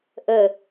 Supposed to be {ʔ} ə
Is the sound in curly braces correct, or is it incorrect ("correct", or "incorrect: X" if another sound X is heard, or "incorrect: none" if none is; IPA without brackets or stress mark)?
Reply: correct